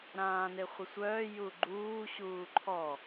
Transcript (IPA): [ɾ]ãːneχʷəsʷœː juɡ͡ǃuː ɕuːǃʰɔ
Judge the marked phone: correct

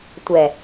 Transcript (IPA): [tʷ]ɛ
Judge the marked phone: correct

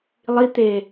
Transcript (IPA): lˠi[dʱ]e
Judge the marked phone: incorrect: t̪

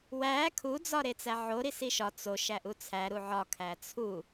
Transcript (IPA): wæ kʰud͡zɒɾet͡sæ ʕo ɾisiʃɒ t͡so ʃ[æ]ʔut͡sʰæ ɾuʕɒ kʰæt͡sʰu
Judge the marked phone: correct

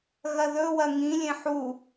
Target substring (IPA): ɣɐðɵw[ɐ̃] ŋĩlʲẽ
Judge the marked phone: incorrect: ɐ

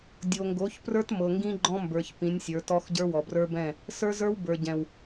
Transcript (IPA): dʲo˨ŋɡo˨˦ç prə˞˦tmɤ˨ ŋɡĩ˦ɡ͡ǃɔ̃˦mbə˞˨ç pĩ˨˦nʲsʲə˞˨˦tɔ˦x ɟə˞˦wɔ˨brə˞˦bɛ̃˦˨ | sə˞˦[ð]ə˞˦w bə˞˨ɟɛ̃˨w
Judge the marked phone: incorrect: z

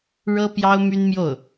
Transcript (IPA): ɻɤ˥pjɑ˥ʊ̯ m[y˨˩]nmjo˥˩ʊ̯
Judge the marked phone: incorrect: y˥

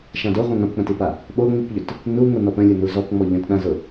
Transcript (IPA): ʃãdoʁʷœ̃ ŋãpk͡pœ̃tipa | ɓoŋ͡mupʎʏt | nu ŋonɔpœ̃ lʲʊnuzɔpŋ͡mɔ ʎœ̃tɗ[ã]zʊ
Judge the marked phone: correct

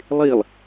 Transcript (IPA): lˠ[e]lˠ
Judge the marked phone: correct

